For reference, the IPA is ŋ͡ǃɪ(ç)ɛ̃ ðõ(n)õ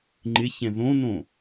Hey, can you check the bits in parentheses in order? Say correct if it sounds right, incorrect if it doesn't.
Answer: correct, correct

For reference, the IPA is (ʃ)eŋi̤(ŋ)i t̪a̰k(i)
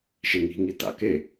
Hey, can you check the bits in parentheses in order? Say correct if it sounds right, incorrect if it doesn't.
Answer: correct, correct, incorrect: e

